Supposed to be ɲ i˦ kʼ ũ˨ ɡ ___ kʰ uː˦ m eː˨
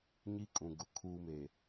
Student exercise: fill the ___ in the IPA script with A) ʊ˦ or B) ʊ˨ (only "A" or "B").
B